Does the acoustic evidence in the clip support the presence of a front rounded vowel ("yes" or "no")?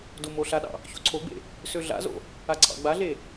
yes